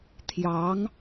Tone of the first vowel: rising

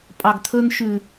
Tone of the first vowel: low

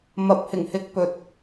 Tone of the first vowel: low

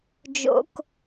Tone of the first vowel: high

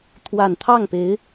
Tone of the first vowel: low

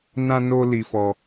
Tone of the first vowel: high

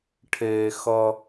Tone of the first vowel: low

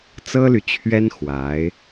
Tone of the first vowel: high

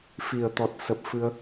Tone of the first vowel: low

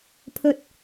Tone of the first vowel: low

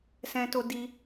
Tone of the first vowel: high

